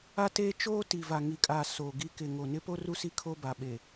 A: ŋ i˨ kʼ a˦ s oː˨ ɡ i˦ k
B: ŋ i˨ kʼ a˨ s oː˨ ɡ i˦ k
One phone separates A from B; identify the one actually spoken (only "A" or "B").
B